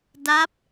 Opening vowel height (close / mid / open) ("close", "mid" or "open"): open